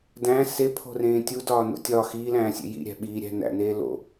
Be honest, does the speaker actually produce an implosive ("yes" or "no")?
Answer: yes